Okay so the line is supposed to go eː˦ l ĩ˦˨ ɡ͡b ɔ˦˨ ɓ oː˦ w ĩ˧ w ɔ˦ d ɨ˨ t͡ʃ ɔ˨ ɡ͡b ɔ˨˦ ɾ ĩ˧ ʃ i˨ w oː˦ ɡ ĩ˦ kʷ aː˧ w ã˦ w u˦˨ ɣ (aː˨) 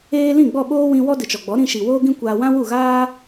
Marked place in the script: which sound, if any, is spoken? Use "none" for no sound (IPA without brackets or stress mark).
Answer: aː˦